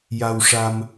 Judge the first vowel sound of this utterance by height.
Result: low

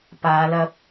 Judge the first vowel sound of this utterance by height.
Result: low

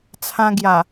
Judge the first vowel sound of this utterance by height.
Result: low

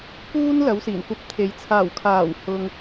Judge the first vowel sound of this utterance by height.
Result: high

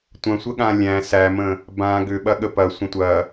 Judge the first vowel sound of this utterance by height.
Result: low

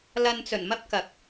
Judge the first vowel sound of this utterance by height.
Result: low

